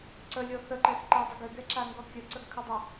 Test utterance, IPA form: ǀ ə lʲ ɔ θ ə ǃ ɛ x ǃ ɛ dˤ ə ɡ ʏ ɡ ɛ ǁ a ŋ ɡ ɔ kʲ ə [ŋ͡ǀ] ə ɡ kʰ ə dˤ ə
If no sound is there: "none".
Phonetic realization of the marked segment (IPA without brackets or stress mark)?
ǀ